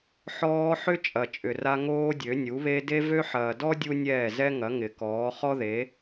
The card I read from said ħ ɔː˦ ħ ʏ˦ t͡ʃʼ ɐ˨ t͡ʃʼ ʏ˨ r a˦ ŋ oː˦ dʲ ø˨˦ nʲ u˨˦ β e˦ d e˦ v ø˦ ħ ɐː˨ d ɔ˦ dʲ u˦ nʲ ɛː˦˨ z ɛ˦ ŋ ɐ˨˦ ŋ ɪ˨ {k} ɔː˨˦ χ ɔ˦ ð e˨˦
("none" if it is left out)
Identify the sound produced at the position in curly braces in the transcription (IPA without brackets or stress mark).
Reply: k